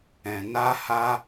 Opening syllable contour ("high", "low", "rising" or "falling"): low